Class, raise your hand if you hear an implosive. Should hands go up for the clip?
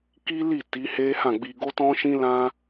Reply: no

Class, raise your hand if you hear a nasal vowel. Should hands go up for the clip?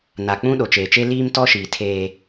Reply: yes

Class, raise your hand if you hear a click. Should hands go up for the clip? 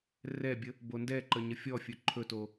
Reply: yes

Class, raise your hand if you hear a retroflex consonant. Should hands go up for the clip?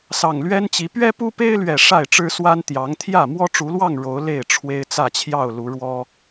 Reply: yes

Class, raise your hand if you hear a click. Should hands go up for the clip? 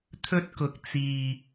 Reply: no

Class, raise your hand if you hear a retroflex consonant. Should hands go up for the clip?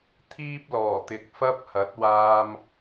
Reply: no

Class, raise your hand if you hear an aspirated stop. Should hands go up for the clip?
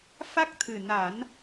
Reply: yes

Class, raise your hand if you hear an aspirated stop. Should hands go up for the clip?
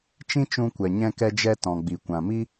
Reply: no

